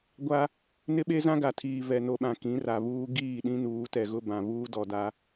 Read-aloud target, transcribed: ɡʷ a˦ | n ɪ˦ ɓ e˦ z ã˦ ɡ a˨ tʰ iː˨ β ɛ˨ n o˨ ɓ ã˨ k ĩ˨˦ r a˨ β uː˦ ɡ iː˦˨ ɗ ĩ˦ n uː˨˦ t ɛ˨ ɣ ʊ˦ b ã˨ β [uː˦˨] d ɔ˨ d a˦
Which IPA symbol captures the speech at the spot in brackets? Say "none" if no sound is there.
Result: uː˦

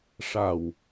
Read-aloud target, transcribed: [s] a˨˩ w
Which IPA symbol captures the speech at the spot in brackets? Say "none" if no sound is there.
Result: ʂ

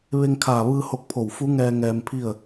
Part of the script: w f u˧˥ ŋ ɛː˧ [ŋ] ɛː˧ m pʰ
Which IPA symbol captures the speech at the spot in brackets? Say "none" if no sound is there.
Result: ŋ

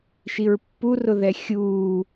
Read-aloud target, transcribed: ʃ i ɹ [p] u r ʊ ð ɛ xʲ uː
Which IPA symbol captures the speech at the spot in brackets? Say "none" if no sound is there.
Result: pː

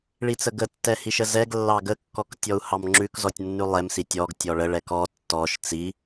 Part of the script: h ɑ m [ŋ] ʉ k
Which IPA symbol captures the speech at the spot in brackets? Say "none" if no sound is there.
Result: ŋ͡ǁ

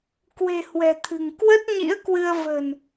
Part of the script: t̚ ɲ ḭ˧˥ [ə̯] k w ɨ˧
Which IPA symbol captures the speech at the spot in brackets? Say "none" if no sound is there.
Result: ə̯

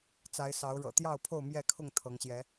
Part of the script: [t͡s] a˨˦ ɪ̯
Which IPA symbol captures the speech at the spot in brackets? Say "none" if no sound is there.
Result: t͡s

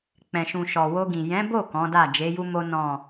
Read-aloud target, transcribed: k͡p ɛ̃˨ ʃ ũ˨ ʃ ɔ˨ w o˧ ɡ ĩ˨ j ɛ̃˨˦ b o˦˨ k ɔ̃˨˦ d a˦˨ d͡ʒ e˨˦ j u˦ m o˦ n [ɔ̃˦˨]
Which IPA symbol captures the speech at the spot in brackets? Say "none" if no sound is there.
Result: ɔ̃˦˨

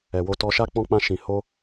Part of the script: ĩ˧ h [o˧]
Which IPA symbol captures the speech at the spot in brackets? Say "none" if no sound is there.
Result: o˦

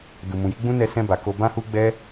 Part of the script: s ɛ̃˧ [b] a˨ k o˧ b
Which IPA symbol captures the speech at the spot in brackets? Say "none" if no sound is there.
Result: b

